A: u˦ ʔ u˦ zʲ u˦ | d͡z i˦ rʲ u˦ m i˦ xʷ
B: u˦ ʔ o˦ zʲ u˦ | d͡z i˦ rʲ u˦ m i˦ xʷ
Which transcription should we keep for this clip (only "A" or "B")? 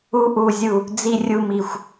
A